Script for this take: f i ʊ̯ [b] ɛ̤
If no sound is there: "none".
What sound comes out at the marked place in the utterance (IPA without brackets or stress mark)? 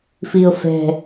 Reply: f